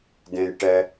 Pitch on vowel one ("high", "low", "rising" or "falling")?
low